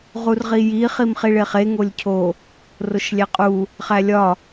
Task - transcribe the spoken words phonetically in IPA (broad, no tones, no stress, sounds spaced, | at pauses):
ʁ u r ʁ i j i χ i m χ i ɭ e χ e ŋ o lʲ cʰ o | r o ʃ lʲ æ qʼ u | χ æ lʲ ɒ